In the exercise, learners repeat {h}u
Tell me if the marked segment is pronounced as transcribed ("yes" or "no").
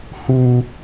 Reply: yes